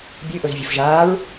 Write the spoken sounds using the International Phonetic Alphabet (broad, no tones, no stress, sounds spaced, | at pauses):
bʲ ɨ ʔ ɵ z vʲ ɵ f ʒ aː ɹ